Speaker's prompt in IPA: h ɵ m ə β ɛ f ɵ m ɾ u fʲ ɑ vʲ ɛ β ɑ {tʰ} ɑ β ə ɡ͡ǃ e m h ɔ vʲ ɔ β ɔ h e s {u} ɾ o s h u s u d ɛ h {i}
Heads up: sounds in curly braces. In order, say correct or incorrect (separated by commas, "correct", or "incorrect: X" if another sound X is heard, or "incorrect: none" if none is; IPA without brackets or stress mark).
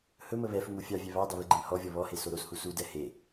incorrect: d, incorrect: o, incorrect: e